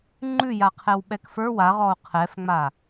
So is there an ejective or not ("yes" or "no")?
no